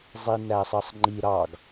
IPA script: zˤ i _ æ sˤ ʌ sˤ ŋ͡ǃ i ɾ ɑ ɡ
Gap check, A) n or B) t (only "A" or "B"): A